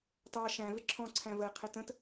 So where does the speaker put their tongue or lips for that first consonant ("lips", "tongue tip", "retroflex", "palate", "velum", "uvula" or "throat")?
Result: tongue tip